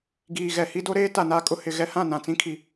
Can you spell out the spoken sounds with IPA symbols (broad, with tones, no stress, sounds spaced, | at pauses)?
ɡ iː˨ ɣ ɛ˨ h i˦ d o˦ ɾ eː˦ t a˨ n aː˦ kʼ ʊ˦ h ɪ˨ ɣ ɛ˦ h ã˦˨ n ã˨ t͡s ĩ˦ kʰ i˨